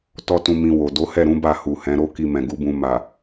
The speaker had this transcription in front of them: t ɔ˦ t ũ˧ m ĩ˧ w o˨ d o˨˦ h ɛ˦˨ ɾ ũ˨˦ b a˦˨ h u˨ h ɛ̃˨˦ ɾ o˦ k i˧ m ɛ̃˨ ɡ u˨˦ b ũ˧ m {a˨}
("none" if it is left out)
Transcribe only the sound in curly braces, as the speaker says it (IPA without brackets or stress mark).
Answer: a˨